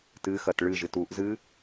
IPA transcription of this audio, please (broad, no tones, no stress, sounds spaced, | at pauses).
t ɨ x ɐ t ɭ ɨ ʒ ɨ t u ʔ z ɨ